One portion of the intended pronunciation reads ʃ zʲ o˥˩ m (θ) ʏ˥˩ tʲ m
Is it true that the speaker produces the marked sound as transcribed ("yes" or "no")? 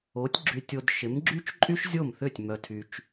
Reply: yes